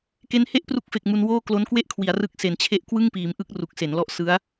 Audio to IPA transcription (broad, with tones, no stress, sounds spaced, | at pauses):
k e˦˥ n h e˥˩ ʔ p r u˦˥ k̚ f e˨˩ k̚ m u˧ n w oː˥˩ k l o˦˥ n k w e˥˩ ʔ kʰ w i˩˦ a̯ r ɯ˦˥ k̚ s e˩˦ n t͡ɕʰ e˦˥ ʔ k w ɯ˥˩ ŋ p iː˩˦ m ʔ ɯ˦˥ k̚ r u˨˩ k̚ s e˩˦ n l ɔ˦˥ ʔ s ɯ˦˥ a̯